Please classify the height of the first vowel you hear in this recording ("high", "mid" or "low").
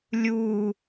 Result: high